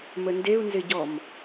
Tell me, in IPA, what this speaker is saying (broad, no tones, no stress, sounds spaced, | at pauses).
m ə n d e u̯ n z ɪ ɟ ɔ m